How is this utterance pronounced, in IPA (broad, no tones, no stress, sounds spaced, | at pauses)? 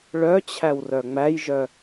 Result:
ɭ œ t͡ɕʰ æ w r œ ŋ͡m æ j ʒ œ